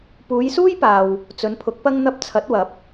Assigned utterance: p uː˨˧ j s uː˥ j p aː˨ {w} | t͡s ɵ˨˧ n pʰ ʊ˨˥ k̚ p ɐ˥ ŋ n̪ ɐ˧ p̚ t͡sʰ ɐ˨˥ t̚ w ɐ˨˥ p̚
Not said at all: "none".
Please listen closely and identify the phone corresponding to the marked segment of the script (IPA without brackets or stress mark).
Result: w